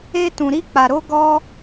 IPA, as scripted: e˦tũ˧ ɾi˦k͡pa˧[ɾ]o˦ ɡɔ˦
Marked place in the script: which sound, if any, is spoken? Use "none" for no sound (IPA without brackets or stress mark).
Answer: ɾ